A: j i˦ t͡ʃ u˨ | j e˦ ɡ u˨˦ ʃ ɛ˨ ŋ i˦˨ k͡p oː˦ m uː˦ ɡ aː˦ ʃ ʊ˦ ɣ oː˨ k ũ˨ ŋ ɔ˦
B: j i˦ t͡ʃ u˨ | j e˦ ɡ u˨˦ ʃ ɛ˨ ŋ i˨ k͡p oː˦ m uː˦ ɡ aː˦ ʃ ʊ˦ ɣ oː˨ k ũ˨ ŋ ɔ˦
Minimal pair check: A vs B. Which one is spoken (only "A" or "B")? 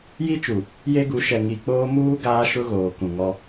B